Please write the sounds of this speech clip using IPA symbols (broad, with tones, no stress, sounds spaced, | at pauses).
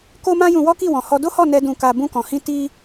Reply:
k o˦ m ã˦ j ũ˧ w ɔ˦ k i˦˨ w ɔ̃˨ h ɔ˧ d o˦ h ɔ˦˨ n ɛ˧ d ũ˧ k a˧ b ũ˧ k ɔ̃˨ h ĩ˧ t i˧